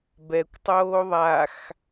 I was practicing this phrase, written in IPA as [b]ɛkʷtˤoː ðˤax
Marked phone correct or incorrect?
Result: correct